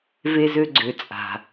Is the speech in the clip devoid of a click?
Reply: no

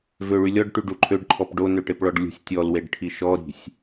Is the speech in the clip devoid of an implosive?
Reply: yes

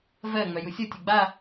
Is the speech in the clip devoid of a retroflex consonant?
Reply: yes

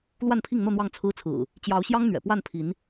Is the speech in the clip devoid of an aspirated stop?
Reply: no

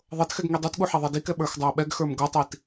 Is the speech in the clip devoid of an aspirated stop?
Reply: yes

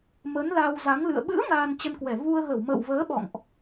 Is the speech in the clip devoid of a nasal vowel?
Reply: yes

